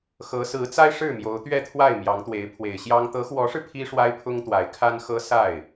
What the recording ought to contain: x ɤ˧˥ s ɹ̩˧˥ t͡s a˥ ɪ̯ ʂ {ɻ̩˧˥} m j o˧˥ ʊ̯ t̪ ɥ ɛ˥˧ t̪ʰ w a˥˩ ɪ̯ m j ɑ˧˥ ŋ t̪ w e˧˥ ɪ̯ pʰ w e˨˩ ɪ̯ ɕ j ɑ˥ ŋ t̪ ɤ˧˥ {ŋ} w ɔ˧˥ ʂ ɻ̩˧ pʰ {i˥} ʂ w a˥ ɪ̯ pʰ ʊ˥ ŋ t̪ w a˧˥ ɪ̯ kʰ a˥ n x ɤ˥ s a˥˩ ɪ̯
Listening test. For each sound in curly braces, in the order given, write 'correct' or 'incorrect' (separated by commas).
incorrect, incorrect, correct